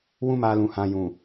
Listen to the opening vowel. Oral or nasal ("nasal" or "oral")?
nasal